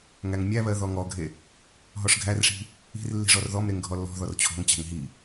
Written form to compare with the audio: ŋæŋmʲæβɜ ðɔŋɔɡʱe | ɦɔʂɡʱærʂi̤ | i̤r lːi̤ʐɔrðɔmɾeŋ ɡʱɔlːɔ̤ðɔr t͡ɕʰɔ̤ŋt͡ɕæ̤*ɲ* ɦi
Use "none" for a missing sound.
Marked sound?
ŋ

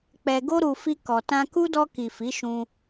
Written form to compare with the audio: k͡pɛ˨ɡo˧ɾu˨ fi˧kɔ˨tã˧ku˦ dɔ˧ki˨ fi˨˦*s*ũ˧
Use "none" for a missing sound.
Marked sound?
ʃ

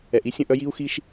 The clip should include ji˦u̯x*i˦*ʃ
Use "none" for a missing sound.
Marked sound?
i˦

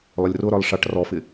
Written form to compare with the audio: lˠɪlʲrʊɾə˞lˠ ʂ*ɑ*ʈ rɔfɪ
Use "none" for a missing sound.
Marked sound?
ɑ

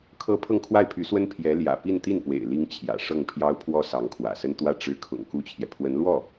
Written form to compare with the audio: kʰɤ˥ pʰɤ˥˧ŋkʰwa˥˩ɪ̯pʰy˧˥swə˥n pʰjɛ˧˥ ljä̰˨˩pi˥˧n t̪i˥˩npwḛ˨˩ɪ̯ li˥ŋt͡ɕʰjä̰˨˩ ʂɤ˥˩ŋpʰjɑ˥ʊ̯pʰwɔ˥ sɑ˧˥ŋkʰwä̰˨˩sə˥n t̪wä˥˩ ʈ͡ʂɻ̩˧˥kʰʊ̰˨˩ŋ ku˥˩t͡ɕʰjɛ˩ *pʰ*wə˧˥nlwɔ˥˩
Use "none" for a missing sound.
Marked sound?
pʰ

